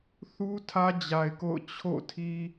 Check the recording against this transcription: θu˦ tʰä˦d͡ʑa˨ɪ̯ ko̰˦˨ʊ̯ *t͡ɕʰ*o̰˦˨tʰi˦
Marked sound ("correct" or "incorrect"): correct